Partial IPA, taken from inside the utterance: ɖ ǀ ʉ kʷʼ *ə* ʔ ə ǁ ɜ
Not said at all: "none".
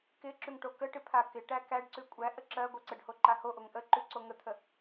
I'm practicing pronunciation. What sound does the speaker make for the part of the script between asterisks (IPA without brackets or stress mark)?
æ